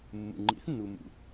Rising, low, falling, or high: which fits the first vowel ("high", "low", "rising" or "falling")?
low